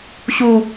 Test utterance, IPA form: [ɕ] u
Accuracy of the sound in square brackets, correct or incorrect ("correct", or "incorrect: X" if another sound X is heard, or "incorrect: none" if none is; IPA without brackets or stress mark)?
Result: correct